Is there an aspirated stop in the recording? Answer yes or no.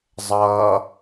no